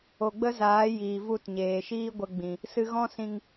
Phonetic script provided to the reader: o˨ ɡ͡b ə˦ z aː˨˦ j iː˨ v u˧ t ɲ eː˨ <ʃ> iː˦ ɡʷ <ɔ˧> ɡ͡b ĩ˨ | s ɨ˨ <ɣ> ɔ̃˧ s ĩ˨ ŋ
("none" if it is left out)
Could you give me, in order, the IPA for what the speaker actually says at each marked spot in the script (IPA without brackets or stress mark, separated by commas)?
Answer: ʃ, ə˧, ɣ